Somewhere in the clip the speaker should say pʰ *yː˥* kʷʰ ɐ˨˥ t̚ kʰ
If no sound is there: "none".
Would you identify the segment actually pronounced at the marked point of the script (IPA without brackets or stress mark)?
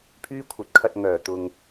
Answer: yː˥